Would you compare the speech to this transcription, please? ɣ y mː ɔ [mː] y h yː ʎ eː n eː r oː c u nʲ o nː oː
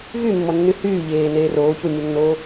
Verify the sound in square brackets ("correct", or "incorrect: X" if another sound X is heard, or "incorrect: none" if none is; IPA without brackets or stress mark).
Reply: incorrect: nː